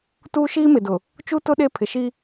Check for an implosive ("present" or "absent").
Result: present